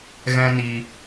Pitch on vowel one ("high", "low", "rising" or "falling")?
high